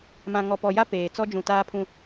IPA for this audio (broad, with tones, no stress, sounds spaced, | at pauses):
m ã˨ ŋ ɔ˨ p ɔ˨ j a˦ p eː˨ t͡s ɔ˦ d͡ʒ ũ˨ t aː˦ pʰ ũ˦